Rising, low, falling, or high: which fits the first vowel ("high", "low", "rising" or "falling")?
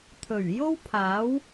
low